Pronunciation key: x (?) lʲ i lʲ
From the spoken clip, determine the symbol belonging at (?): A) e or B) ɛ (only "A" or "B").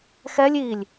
B